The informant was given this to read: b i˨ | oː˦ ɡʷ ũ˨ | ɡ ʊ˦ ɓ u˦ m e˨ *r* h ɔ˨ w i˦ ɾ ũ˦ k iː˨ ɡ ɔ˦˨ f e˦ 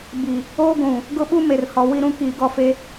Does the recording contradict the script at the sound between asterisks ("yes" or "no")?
no